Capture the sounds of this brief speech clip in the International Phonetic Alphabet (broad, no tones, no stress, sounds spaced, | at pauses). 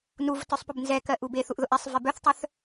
n u v t œ sˤ p ʊ b n z ɛ k ɜ ʔ u b e θ u ʔ ð ʊ ʔ ɛ sˤ v ɛ b œ θ tˤ œ θ